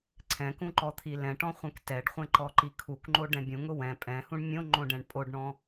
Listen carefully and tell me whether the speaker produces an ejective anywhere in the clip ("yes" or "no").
yes